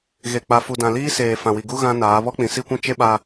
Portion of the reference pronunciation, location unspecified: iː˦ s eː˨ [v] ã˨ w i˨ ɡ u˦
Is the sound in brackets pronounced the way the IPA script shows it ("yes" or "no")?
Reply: no